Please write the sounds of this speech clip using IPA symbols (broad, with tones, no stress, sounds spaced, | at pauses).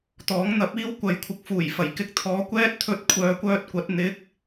t̪ ɔː˨˥ ŋ n̪ ɐ˨˥ p̚ iː˥ w kʷ ɐ˨˥ j kʷʰ ɪ˨ k̚ f uː˨˩ j f ɐ˨˩ j k ɪ˧ k̚ t̪ʰ ɔː˨˧ kʷ ɛː˥ t̚ t̪ʰ ɵ˧ t̚ kʷʰ œː˨˧ kʷ œː˥ t̚ kʷ ɐ˨˥ t̚ n̪ ɪ˨˥ k̚